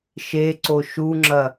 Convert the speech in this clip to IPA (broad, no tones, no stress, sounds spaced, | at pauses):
ʃ e ǀ o ʃ u ŋ͡ǁ ɐ